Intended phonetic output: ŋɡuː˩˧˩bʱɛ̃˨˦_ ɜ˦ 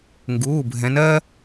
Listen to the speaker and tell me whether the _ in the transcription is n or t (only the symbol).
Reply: n